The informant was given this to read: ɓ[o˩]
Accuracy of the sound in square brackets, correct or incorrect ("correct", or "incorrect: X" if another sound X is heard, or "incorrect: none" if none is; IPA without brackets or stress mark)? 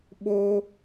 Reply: incorrect: o˧